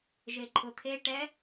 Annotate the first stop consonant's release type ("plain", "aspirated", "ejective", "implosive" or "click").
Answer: click